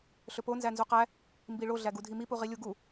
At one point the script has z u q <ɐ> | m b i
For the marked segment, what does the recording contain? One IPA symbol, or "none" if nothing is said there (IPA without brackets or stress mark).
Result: æ